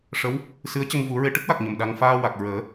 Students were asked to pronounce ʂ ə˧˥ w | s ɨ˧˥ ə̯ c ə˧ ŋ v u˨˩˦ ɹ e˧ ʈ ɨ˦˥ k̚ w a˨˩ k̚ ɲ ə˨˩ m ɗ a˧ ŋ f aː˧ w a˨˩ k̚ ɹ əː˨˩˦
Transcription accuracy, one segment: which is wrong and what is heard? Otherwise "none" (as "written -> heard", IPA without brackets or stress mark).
none